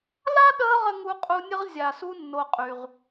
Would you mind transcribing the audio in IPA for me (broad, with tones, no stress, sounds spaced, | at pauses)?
l a˥ ɗ əː˦ ʁ ə˥ ŋ u˦ qʼ u˦ nʲ ə˥ ʁ zʲ a˨ s u˦ nː o˨ qʼ y˩ ʁ